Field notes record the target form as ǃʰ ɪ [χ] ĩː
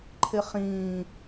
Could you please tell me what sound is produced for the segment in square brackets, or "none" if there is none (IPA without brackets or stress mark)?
χ